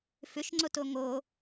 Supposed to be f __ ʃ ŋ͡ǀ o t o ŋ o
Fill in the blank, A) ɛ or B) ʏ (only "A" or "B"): B